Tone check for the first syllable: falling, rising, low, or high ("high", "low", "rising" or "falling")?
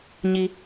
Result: high